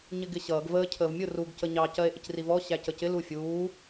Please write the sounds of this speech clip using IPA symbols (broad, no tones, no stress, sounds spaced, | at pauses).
ɲ ɪ ɡ ɪ ɕ ʌː ɡ v əː cʰ əː v mʲ ʊ r u ɡ c ə ɲ ɑ c ɜ e̯ ʔ ɪ c r i v ɔ ɕ æ c ə c ɪ l u fʲ uː